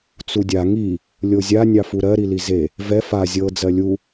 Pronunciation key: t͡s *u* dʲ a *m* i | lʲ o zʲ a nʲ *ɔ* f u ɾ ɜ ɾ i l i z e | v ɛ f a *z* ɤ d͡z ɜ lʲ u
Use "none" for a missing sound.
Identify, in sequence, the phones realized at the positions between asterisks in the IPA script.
u, ŋ, ɑ, zʲ

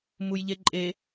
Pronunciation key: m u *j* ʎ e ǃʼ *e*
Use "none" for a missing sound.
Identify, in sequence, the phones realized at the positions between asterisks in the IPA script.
j, e

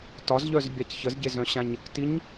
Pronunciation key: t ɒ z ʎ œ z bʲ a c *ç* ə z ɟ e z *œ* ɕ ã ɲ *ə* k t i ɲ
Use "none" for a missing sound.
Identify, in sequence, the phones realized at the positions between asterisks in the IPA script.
ç, œ̃, ə

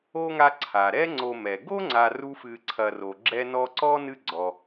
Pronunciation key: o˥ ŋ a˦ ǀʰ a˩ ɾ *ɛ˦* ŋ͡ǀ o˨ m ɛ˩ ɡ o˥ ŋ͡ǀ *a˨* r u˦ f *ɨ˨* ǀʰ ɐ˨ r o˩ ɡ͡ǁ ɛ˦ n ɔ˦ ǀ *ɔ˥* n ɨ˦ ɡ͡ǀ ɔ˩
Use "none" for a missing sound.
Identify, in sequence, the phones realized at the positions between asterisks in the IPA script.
ɛ˦, a˨, ɨ˨, ɔ˥

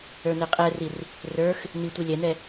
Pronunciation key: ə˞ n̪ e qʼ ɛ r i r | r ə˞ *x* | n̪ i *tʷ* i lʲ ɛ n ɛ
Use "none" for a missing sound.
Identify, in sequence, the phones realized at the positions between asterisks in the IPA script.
x, tʷ

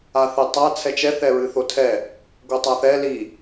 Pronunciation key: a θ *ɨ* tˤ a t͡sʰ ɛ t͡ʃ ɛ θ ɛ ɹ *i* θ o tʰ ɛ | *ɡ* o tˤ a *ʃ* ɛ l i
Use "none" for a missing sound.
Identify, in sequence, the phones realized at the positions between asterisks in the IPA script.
ɛ, ɨ, ɡ, θ

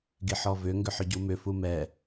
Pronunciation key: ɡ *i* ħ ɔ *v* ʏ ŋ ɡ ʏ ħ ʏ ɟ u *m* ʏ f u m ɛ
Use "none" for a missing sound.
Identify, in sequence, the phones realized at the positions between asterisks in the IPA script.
i, v, m

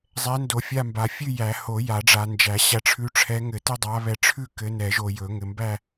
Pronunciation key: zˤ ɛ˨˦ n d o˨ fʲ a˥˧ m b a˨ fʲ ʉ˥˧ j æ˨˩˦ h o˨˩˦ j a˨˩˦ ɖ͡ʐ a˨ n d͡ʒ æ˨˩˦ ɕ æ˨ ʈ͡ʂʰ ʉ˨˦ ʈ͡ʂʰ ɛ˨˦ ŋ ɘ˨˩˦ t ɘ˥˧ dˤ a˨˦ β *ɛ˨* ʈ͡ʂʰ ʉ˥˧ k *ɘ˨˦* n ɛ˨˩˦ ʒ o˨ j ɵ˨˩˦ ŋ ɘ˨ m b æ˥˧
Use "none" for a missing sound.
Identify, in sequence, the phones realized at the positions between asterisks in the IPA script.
ɛ˨˦, ɘ˨˦

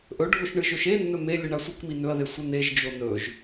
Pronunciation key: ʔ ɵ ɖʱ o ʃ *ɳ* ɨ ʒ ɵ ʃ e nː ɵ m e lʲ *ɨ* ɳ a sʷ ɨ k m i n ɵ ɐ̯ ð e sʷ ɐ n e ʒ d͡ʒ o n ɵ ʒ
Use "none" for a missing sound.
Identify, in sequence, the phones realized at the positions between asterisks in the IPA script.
ɳ, ɨ

